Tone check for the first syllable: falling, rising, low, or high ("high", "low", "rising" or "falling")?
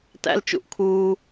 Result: high